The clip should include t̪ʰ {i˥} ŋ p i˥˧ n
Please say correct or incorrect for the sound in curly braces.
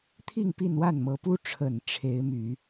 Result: incorrect